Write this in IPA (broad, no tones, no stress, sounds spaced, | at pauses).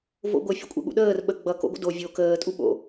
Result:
v o̰ ɡʷ ə fʲ ə̰ kʷʼ ə̰ ɠ ṵ ɗ əː r ɓ ə ɡ͡b ʌ k o̰ ɡʷ ə̰ d o vʲ o k əː tʼ u ɓ o̰